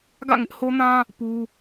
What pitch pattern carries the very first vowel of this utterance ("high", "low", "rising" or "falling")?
falling